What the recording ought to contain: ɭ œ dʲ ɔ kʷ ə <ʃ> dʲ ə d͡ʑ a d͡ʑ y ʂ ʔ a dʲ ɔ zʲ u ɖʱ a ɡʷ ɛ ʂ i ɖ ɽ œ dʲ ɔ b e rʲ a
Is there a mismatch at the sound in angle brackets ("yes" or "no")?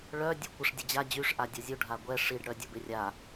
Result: yes